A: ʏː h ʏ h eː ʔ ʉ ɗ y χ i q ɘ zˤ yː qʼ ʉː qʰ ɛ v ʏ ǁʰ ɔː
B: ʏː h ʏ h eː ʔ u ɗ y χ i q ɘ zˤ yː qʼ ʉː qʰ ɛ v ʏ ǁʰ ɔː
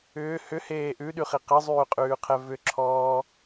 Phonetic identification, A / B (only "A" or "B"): A